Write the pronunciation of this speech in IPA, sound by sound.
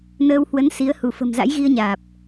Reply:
n əː˧ w h w ə˨˦ n s i˨˦ ə̯ h u˧˩ f ə̤˨˩ m z a̰˧˥ j ɣ i˧ ə̯ ɲ aː˨˩ p̚

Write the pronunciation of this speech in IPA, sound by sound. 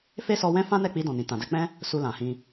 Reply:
f e˦ s ɔ˧ w ɛ̃˦ f ã˦ n ɛ˦˨ k͡p i˧ d ɔ̃˨ n ĩ˨ t ã˨ d ɛ˧ k͡p ɛ̃˦ | s u˧ l ã˨ h ĩ˧

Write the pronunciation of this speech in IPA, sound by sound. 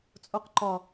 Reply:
t͡sʼ o q ǃ ɒ

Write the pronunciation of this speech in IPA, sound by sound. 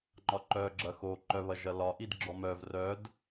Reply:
ŋ͡ǃ ɒ ǃ œ ɡ͡ǁ ɐ x o ǃ œ β ɐ ʒ ɐ l ɒ ʔ i d ɡ͡ǁ ɔ m œ v r œ d

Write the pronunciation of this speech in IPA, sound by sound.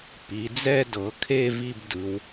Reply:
p i˩˧ d͡z ɛ˥˧ d ɤ˩˧ kʰ e˥˧ v i˥˧ b d ɯ˩˧ w

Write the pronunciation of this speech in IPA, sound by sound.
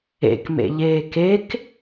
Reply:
ḛ k m ḛ ʎ eː k e k

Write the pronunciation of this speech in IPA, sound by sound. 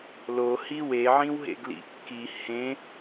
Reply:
l o h i w e ʕ ĩ w ɦ ḛ ɡ l ḭ kː i h ẽ

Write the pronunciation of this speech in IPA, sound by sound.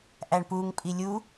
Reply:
ʔ æ ɳ p u ŋ pʼ i lʲ u

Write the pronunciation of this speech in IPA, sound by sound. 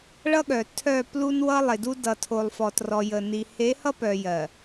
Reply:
ɭ ʌ˦ ɠ œ˨ tʰ œ˦˨ p l u˦ n w ʌ˦ lˠ e˨ d u˦ d ʌ˨ tʰ o˨ lˠ f ɔ˨ t r ɔ˨ j ə˨ n i˨ h e˨˦ h ʌ˦ p œ˨ j ɜ˨

